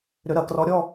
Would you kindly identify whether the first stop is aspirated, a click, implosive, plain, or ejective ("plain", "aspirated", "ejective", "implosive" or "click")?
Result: plain